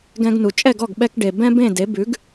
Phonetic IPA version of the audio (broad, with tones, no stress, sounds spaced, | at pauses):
ɡ ɛ̃˧ ɡ n u˩ t͡ʃʼ ɛ˥˩ ɡ ɔ˥˩ ɡ ɓ ɛ˧ k ɖ e˩ b ɛ̃˥ b ẽ˥˩ d e˩˥ b ʉ˩˥ ɡ